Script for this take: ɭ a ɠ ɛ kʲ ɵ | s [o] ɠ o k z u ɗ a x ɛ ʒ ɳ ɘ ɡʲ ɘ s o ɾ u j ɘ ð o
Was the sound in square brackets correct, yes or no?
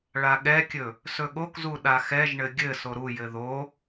no